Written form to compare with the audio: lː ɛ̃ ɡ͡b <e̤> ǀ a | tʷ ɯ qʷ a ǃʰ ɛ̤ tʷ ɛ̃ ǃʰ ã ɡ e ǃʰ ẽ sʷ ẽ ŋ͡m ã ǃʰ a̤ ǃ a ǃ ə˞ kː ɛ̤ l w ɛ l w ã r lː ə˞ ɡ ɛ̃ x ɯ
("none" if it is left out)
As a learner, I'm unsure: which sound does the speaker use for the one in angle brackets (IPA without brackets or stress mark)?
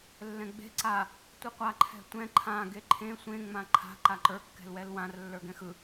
e̤